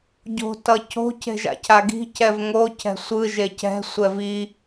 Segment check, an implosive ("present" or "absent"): absent